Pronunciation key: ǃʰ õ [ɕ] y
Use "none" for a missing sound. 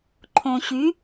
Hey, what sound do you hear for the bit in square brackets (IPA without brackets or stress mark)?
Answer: ɕ